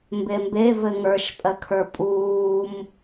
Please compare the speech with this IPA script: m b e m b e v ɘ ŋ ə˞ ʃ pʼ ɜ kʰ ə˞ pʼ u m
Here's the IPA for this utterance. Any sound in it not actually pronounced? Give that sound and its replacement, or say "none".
u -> uː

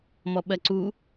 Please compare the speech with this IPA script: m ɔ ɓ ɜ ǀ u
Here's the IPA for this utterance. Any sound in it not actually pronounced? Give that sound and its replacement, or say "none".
none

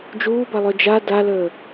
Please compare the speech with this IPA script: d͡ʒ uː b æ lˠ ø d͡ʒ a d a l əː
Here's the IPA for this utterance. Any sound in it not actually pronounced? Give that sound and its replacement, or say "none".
æ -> a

